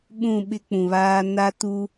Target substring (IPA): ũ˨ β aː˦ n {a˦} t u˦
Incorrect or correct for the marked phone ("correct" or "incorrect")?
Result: correct